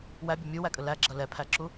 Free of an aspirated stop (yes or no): no